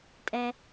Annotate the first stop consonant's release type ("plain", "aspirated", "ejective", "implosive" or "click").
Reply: ejective